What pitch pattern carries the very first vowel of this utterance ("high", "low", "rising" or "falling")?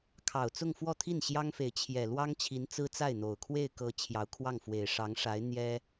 low